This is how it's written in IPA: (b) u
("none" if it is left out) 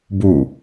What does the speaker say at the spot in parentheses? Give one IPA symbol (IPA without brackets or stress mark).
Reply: b